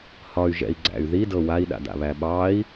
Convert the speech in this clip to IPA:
h ɒ y̯ ʒ ɛ̰ i̯ ɡ͡ǀ æ̰ y̯ ð i d ɤ w a i̯ ɗ a̰ d a̰ β æ ɓ ɑ i̯

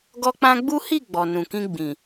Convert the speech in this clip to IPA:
ɡ ɔ˧ k͡p ã˧ ɡ͡b u˦ h i˦˨ ɡ͡b ɔ˨ n ũ˨ k ĩ˧ ɡ͡b ĩ˨

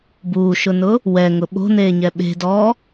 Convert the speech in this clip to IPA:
b uː ʃ ʊ n ʊ | w ɛ ŋ ʊ ɓ o̤ n eː ɲ ɛ ɓ e̤ d ɔː

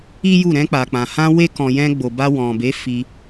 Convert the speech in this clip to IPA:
i˦ j u˦˨ ɾ ɛ̃˧ k͡p a˨ k͡p ã˨ h ã˧ w e˧ k ɔ̃˨ j ɛ̃˧ ɡ͡b o˨ b a˧ w ɔ̃˨ b e˨˦ f i˧

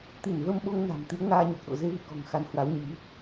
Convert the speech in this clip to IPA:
t̪ i˧˩ n v ə˧ m ɓ o˧ ŋ n a̤˨˩ m t̪ i˨˦ ə̯ ŋ aː˧ ɲ o˨˩ k̚ ɗ o̰˧˨ z e˧ v ḭ˧˨ k ɔ̤˨˩ ŋ x a˨˦ n h w a˨˦ w ɲ i˨˦

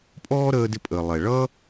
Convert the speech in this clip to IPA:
pʼ ɔː˥ ɾ əː˧ d ɪ˧ pʼ əː˩ lˠ ɛ˩ ɭ ʌ˥

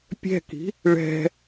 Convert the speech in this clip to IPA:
pʲ ɛ̤ k i̤ | ɭ ɛ̤

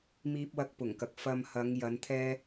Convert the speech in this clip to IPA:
m iː˥ p̚ w ɐ˥ k̚ p ʊ˨˩ ŋ k ɐ˨ k̚ f ɐ˧ m h ɐ˨˧ ŋ j ɐ˨˧ n t̪ʰ ɛː˥

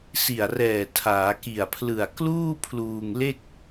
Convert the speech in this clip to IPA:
s i˨˩ a̯ r ɛː˨˩ tʰ aː˩˦ k i˨˩ a̯ pʰ l ɯ˨˩ a̯ k l uː˥˩ pʰ l uː˧ ŋ l e˥˩ k̚

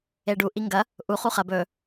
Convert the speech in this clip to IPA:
e ɖ u ʔ i ŋ ɡ ɐ | ʔ u χ u χ ɐ b ɵ

